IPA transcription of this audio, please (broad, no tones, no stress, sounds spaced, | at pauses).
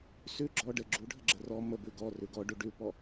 s ʉ ɡ͡ǁ ɔ ɖ ə ɡ͡ǁ u ɖʱ ə ɡ͡ǁ ə r ɔ m ə b ʉ ɡ ɔ r ʉ ɡ ɔ ɖ u ɖ ʉ p ɔ